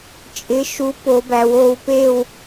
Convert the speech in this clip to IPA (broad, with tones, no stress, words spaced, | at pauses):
t͡ʃʼɪ˨˥ʃu˨˥po˩˧bæ˩˧w o˧w pe˥˧w